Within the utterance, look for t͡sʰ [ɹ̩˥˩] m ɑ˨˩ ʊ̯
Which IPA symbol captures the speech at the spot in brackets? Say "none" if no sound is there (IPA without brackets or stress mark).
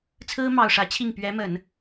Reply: ɹ̩˥